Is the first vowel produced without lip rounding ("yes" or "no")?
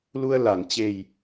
no